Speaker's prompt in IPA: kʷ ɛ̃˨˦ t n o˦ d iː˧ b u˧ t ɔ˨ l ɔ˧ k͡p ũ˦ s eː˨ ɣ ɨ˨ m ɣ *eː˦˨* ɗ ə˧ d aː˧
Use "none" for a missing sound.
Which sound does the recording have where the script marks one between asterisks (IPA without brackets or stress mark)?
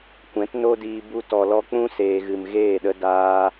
eː˦˨